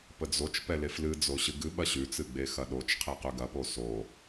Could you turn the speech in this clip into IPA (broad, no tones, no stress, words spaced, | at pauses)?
pəd͡zot͡ʃpɛ leflɨd͡zo ɕɨɡɨɓɐ ɕʉt͡sɨ ɡ͡bexɐɗot͡ʃqʰe qʉɡɐpo so